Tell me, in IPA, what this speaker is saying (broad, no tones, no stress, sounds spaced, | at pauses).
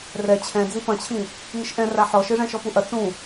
r ɛ t͡ɕʰ ɛ̃ d͡z i p ɐ̃ t͡ɕʰ ĩ | ŋ ɨ ʃ ʔ ɛ̃ r a ħ ɔ ʃ ɨ ʐ ɛ̃ ʃ ɔ p u ʔ ɐ t͡s ũ